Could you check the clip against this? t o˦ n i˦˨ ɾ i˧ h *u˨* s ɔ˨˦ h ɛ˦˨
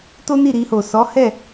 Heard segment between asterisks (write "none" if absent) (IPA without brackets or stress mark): o˨